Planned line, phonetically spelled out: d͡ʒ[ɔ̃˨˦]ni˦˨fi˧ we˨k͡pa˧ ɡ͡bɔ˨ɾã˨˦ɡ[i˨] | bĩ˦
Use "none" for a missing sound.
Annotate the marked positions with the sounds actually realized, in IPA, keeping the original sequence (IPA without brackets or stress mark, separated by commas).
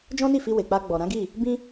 ɔ̃˦, i˦˨